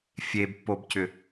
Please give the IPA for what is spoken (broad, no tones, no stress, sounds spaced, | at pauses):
fʲ e b pː o b c ʏ